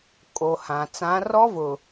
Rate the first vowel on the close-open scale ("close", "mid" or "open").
mid